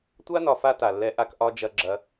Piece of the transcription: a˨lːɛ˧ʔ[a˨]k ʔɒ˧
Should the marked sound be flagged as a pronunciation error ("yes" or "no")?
yes